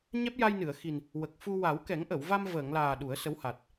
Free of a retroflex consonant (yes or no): yes